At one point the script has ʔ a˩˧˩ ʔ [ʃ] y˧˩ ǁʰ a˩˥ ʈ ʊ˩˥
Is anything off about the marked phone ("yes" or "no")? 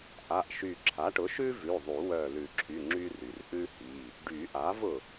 no